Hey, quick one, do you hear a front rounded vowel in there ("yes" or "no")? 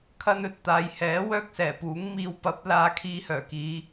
yes